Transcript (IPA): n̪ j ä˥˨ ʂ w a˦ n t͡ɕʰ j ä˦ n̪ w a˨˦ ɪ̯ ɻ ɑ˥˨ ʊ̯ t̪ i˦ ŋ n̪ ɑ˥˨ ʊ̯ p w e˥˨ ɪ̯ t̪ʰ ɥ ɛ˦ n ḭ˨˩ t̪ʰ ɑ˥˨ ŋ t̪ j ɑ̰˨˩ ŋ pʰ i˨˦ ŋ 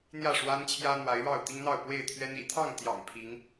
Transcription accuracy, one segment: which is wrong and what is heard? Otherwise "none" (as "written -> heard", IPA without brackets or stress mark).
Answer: none